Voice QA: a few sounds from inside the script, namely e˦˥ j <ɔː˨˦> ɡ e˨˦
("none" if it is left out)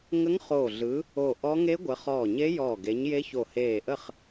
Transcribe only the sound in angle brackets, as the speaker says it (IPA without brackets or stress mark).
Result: ɔː˧˩